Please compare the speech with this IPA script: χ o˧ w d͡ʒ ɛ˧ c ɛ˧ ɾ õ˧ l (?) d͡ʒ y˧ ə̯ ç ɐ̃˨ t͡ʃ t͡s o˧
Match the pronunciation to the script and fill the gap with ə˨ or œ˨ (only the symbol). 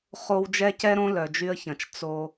œ˨